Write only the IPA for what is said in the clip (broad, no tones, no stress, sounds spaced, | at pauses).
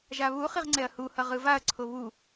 ʒ a β u χ i ʁ ŋ͡ǀ ɛ ɐ̯ h u h ʌ ʁ ɯ v a ɐ̯ ǀʰ o β u